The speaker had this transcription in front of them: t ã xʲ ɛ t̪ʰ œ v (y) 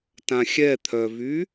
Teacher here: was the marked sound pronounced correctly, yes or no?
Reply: yes